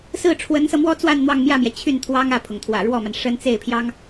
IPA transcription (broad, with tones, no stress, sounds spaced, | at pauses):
s ɹ̩˥˩ ʈ͡ʂʰ w ə˧˥ n s ɤ˧ m w ɔ˥ t͡s w a˥˧ n n̪ w ɑ˥˧ ŋ m j ä˥˩ m j ɛ˩ t͡ɕʰ y˥˩ n t̪ʰ w ɑ˥ ŋ ä˥˩ pʰ ʊ˩ ŋ t̪ʰ w ä̰˨˩ ɻ w ɔ˥˩ m a˩ n ʂ ə˥ n t͡s e˥˩ ɪ̯ pʰ j ɑ˥ ŋ